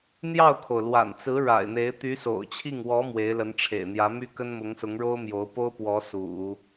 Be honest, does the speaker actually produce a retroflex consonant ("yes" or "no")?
yes